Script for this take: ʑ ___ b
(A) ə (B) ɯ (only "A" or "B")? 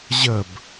A